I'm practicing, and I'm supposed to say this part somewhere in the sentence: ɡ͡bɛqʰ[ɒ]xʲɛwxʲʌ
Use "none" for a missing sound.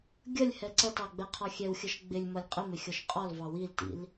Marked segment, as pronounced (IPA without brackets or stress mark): ɒ